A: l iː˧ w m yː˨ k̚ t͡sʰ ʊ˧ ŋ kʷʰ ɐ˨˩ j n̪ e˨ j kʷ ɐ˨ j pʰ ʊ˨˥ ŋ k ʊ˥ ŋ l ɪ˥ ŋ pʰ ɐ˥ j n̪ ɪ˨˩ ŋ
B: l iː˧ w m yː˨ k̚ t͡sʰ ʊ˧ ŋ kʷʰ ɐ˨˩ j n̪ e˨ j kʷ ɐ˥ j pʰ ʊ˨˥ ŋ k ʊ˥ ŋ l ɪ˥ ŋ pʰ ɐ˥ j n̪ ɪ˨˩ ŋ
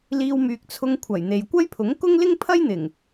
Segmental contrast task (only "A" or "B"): B